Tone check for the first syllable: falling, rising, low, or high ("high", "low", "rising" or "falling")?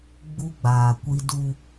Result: high